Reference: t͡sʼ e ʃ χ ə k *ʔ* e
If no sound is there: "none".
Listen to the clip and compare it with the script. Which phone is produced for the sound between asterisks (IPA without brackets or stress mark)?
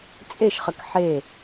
ħ